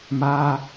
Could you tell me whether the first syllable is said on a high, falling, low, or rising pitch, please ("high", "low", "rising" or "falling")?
high